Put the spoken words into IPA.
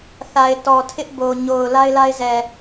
θ a˨ ɪ̯ t ɔ˨ tʰ ɪ˦ ʔ b o˨ ɲ o˨ ʊ̯ l a˦ ɪ̯ l a˦ ɪ̯ z ɛ˨

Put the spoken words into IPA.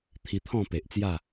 t̪ʰ i˧ t̪ʰ ɔ̃˥˧ p e˨ ʔ t͡s j a˥˧

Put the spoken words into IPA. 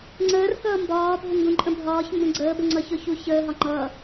ŋ͡ǀ əː r k ʌː m b ɒː bʱ ɪ ŋ ɡ ũ ǃʼ ə̃ bʱ ɒː ç m b ə̃ ɡ͡ǀ əː b ə ŋ͡ǀ ʌ ç ʊ ç u ç əː ɦ ɒ ŋ͡ǃ ʌː

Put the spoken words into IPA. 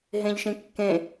ɦ ẽ ʎ ʃ ĩ kː ẽ

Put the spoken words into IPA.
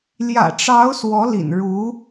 l j ä̰˨˩ ʈ͡ʂ ɑ˧˥ ʊ̯ s w ɔ˧˥ l ḭ˨˩ n ɻ u˧˥

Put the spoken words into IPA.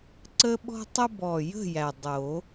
ǀ ə˦ ɓ ɔ̤˦ tˤ ə˦ b ɔ˨˩ j ə̤˦˨ j æ˨˩ dˤ o˨˩˦

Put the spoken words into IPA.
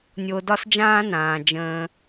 nʲ o˧ d ɒ˥ s d͡ʒ ãː˥ n ãː˩ d͡ʒ ə̃ː˧

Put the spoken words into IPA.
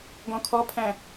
ɡ ɔ̃ kʰ ɔ pʰ æ̃

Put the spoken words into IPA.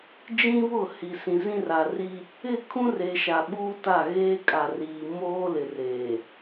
d͡ʒ ĩ˦ β ʊ˦˨ h i˨ s ĩ˨ z ĩ˦ r a˨ r i˦ | ɪ˦˨ kʰ ũ˦ r e˨ ʃ a˨ ɓ uː˦ t a˦˨ ɣ eː˦ kʼ a˨ r iː˨ m oː˦ l ɪ˨ r eː˨

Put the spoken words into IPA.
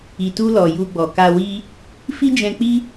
i˨ t u˧ l ɔ˨ j u˧ ɡ͡b ɔ˨ k a˧ w i˦ | f i˦ d͡ʒ ɛ̃˧ k͡p i˦

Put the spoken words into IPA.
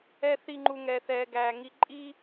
ɛ˨ θ i˨ ŋ͡ǃ u˩ ŋ ɛ˩ θ ɛː˩ ɡ æː˩ ŋ i˨ ǃʼ i˦

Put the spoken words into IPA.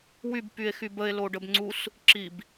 w y b p y e̯ x y b ə e̯ l o ɖ ə b ŋ͡ǀ u s | ǁ i b

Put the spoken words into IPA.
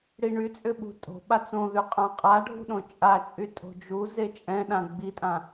ɽ i ɳ y t͡sʼ ʏ ɓ ṳ tʼ o̤ ɓ a t͡s õ ð y qʼ ã qʼ a ɖʱ ṳ ɗ õ t͡ʃʼ a t͡ʃʼ y tʼ o̤ d͡ʒ u z e t͡ʃʼ ɛ̃ ɗ ã ɡ͡b i tʼ ã

